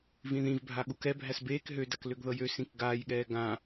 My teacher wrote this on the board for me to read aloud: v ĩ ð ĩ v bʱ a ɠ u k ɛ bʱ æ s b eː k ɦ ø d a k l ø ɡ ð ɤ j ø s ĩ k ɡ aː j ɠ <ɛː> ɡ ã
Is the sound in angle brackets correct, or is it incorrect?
correct